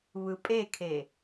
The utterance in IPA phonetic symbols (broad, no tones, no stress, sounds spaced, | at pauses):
β ɯ pʼ e kʰ e